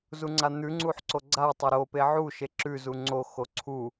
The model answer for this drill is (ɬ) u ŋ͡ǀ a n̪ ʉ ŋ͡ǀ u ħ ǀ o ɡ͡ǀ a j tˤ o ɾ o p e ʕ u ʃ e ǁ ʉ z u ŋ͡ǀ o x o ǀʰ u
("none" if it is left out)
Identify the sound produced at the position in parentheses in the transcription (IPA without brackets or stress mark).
z